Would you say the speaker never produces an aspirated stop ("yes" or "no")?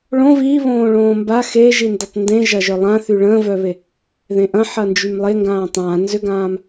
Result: yes